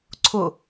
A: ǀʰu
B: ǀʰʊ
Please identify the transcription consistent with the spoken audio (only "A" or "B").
B